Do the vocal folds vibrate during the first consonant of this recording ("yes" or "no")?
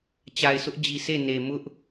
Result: no